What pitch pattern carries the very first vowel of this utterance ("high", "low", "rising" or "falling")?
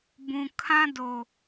low